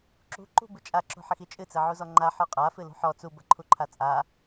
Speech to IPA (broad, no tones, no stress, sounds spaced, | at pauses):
ǁ ṳ ǃ ṳ b ɨ t͡ʃʼ a ǁ o̤ ħ ɘ x i t͡ʃʼ ɨ t͡s ɘ ʕ u z ɔ ŋ͡ǃ a ħ ɔ qʼ a f ɨ l ṳ ħ ɔ t͡s u b ɐ ǃʰ u ǃʰ a t͡sʼ a